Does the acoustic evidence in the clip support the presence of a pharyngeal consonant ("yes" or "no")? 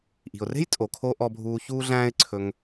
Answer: no